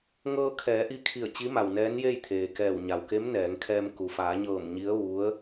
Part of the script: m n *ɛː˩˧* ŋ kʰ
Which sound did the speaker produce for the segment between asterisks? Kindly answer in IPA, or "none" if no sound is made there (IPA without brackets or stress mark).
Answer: ɛː˩˧